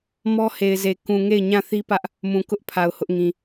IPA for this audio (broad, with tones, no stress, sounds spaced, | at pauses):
m ɔ˦ h e˨ ɪ̯ z e˨ k ũ˨ ŋ e˦˨ ɪ̯ ɲ ã˦˨ θ i˦ p ä˦ ʔ | m ũ˨ k ʊ˦ ʔ pʰ a˨ ʊ̯ h ʊ˦ ʔ ŋ ĩ˨